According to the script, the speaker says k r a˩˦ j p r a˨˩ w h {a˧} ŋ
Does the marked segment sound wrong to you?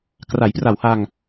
no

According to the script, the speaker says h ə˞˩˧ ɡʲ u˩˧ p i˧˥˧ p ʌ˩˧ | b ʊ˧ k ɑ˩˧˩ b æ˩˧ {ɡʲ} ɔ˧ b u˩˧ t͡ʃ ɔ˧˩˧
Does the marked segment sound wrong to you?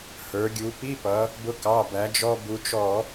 yes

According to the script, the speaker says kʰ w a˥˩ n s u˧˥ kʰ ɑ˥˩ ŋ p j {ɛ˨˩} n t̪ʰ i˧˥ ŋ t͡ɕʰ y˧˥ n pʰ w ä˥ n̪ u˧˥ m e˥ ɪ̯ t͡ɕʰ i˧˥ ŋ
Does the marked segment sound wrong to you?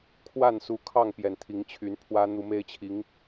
no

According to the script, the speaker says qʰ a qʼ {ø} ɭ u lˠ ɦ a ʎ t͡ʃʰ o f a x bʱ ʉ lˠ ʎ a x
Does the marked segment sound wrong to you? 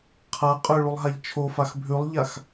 no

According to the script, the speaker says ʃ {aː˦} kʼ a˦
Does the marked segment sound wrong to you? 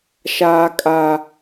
no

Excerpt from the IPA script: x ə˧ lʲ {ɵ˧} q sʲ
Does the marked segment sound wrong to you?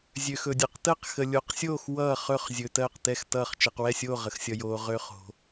yes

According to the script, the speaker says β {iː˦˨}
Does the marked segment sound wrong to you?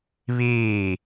no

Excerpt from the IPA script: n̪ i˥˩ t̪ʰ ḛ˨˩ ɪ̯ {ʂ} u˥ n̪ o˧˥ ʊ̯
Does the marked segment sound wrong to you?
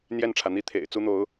yes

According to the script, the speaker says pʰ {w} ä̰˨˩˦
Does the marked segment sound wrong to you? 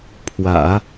no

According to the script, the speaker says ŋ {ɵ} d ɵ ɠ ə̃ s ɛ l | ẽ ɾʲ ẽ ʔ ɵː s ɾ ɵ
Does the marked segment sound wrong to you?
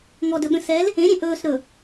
yes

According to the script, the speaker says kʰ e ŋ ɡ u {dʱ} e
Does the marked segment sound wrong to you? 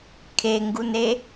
yes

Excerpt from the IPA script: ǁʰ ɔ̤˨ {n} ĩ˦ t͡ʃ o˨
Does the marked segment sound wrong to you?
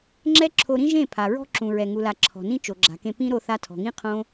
no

